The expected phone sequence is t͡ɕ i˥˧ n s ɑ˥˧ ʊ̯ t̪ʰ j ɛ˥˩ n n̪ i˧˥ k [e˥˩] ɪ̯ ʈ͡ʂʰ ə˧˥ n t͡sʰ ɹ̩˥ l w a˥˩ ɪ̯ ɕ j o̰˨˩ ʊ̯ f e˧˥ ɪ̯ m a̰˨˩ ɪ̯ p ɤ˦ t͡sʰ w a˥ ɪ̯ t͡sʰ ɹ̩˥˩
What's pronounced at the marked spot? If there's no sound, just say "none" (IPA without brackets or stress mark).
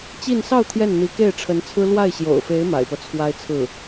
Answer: e˥˩